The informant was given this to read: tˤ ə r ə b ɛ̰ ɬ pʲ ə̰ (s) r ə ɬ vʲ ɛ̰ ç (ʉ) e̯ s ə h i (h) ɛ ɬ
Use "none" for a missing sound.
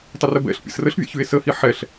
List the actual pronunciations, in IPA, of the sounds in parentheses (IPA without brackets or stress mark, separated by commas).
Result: s, ʉ, ħ